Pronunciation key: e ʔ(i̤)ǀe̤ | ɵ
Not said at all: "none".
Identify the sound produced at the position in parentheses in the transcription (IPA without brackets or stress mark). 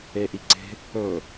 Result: i